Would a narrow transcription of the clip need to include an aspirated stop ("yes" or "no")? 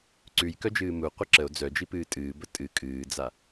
no